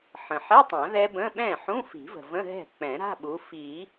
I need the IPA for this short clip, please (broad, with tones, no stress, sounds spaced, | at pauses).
ħ ə̃˩ ħ ɛ˧˥˧ tˤ ã˨˩˦ ð ɛ˦˥ b ə̃˧˥˧ ɓ ɛ̃˥˩ ħ ũ˧˥˧ f i̤˨˩˦ v ə̤˩ v ə̃˧˥˧ ɦ ɛ̤˥˩ k͡p ɛ̃˨˩˦ ɾ a̤˧˥˧ ɓ u˨˦ f i˨˩˦